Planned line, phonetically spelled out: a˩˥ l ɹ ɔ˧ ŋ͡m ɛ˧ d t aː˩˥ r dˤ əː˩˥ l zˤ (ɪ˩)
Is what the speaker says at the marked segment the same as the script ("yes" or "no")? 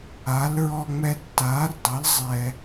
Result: no